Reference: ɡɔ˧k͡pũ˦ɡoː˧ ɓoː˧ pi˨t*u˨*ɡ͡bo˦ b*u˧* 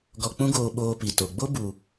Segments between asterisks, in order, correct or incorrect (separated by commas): incorrect, correct